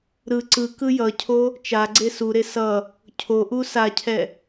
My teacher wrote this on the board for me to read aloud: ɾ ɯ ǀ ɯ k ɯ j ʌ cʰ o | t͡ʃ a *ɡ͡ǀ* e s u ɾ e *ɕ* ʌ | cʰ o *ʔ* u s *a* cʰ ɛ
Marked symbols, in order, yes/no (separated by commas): yes, no, yes, yes